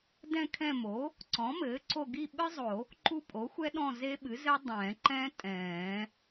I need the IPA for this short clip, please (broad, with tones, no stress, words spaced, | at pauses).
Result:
dɛ̃˦˨kʰɛ̃˦˨ mo˩˥ | ǀɔ̃˩˥mɘː˩˥ǀo˦˨ ɡi˦˨ɓɨ˦˥zˤo˨˩˦ | ǃu˦˨ pʼo˩˥xʷɛ˦˥ɗɔ̃˦˨ ze˦˥ɓɨ˩˥zɘ˦˥ dˤɛ̃ː˨˩˦ǃɛ̃ː˦˥ tʼɛ̃ː˨˩˦